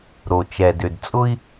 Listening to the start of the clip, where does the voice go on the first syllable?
low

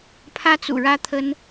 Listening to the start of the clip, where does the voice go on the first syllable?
high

